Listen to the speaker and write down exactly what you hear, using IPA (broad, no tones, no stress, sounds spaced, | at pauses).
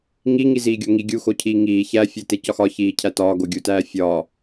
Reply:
ŋ i ŋ i z iː ɡʲ o ŋ i ɡʲ u x o cʰ iː ŋ iː ç æ fʲ e t e c ɒ x ɒ ç iː cʰ æ t ɒː ɡ o ɡʲ u t æː fʲ ɒː